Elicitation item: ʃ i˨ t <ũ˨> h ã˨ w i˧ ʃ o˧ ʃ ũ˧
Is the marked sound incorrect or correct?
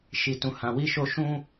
correct